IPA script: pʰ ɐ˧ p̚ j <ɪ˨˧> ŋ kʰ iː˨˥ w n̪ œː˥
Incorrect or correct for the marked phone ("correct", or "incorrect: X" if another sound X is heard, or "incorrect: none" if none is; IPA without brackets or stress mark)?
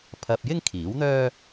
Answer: incorrect: ɪ˥